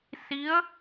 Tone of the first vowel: rising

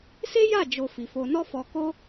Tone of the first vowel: high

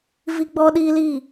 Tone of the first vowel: high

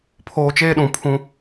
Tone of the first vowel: low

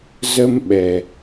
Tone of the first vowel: high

